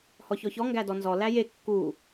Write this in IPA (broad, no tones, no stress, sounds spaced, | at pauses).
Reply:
h ɔ ç ɔ ç ɔ ŋ ɡ æ d ɔ n z ɔ l æ j e kː u